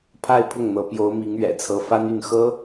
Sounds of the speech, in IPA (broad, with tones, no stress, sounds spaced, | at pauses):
pʰ a˥˧ ɪ̯ pʰ ʊ˥˩ ŋ n̪ ɤ˧˥ p j o˧˥ ʊ̯ m i˧˥ ŋ ɥ ɛ̰˨˩ t͡sʰ ɤ˧˥ f a˥ n y˥˩ n x ɤ˥